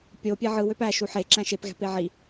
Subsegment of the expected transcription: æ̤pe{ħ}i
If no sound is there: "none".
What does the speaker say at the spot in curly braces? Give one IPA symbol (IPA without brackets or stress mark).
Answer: ʕ